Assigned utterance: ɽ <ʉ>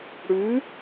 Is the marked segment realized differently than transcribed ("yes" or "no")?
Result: no